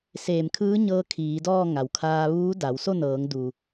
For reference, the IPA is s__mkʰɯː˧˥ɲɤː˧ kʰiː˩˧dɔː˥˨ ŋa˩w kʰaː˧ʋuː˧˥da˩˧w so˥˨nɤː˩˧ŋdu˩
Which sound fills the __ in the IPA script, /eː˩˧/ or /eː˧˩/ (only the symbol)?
eː˧˩